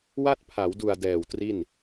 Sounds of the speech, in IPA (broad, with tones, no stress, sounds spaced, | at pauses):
w a˥˩ t̚ pʰ a˩˦ w d u˨˩ a̯ d ɛː˨˩ w t r i˥˩ n